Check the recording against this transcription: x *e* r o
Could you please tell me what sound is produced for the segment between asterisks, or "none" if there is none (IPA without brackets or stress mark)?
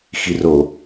i